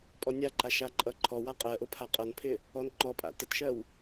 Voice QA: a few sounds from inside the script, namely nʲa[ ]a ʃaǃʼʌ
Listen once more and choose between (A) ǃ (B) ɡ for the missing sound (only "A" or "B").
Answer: A